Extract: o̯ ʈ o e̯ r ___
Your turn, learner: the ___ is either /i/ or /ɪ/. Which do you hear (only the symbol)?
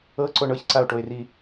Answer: i